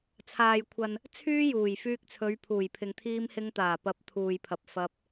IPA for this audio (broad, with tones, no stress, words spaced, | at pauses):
t͡sʰaː˨jkʷʰɐ˨n | t͡sʰyː˥juː˨˩j fyː˧k̚t͡sʰɵ˨˧ɥpʰuː˨˩jpʰɪ˨ŋ t̪ʰiː˧mhɪ˧ŋt̪aː˨˩pɐ˨˥p̚ t̪ʰuː˨jpʰɐ˨p̚fɐ˧p̚